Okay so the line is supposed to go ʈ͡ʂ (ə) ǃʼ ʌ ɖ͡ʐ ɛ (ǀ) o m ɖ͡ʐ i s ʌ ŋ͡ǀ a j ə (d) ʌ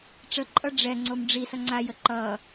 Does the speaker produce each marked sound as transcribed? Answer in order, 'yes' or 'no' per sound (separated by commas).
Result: yes, no, no